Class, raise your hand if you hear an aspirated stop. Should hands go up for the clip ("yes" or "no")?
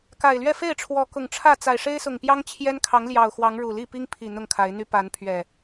yes